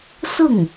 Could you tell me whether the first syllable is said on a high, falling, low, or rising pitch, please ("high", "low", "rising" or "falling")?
falling